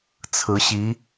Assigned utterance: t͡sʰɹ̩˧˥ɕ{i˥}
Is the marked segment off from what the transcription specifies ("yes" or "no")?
yes